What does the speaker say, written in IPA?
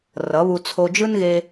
r ʌ˨˦ β u˧ t͡sʰ o˧ d͡ʒ ɯ˦ n ɣ e˧

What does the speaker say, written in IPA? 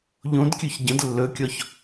ʎ õ d kʲ ɵ ç ɟ ə̃ d lː ɵ kʲ ɔ ç

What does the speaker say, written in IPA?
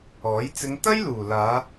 ɔː˨˥ j t͡s ɪ˨˧ ŋ t̪ ɐ˥ j l uː˨˩ l aː˨˧

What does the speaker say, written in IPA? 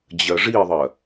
d͡ʑ ɜ ʐ i ðˤ ɜ

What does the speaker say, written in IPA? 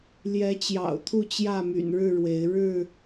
l j ɛ˨˦ t͡ɕ j ɑ̰˨˩ ʊ̯ t̪ʰ u˥˨ t͡ɕ j ä˥˨ m y̰˨˩ n ɻ ɻ̩˥˨ ɻ w e˨˦ ɪ̯ ɻ ɻ̩˥˨

